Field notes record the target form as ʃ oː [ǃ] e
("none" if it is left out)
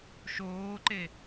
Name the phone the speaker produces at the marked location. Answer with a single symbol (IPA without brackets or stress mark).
ǃ